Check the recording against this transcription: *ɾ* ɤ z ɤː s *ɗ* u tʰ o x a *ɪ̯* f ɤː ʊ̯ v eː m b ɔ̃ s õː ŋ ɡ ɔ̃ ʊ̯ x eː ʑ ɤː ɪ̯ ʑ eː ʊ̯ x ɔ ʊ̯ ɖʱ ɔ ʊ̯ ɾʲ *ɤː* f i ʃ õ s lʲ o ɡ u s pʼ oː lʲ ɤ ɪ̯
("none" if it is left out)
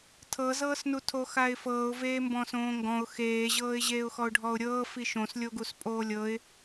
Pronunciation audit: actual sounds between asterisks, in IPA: tʰ, n, ɪ̯, ɤː

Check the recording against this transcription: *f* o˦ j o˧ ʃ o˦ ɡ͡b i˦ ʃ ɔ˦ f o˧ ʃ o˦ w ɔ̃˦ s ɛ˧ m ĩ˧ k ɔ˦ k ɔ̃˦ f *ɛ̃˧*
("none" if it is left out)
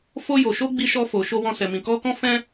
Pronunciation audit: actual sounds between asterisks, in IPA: f, ɛ̃˦

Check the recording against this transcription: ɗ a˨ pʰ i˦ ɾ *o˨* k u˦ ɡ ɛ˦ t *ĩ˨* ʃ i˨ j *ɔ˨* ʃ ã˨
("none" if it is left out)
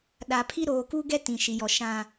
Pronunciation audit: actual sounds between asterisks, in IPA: oː˨, ĩ˨, ɔ˨

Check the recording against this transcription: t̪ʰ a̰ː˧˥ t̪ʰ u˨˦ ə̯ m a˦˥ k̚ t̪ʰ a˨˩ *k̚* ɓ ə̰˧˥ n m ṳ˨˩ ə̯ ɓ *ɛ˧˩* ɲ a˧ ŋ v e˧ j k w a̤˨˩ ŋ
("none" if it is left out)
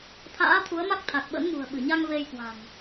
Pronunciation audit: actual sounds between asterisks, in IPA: k̚, ɨ˧˩

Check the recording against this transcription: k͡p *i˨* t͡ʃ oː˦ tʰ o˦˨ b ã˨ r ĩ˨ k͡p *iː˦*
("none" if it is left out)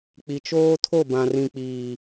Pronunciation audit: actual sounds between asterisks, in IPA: i˨, iː˨

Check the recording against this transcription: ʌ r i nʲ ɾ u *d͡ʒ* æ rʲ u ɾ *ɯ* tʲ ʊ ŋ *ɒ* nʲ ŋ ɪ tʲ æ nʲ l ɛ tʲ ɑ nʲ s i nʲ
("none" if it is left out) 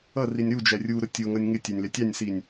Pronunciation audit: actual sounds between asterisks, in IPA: d͡ʒ, ʊ, ʌ

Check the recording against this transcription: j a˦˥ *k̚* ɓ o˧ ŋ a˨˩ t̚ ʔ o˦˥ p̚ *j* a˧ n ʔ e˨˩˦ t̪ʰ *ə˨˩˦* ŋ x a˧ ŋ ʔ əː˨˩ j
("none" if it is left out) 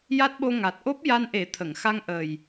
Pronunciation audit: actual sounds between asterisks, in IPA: t̚, j, ə˨˩˨

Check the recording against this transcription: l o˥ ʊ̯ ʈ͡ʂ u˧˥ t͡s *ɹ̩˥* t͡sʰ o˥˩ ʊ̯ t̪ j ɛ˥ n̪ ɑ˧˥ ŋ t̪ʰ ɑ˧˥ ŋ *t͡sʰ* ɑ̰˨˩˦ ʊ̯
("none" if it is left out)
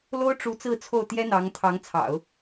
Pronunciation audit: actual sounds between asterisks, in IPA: ɹ̩˥˧, t͡sʰ

